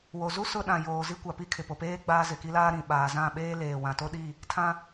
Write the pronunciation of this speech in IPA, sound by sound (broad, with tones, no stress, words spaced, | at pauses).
wo˨zu˦ sʊ˦ ɗã˨joː˨zi˦ kʷa˨pi˦ kʰɪ˨po˨peː˦ ɡ͡baː˦ zɪ˨ki˦laː˦ ɾĩ˨ɓaː˨zã˦˨ɓeː˦ leː˨wã˨to˦ɗi˦˨ | tʰã˦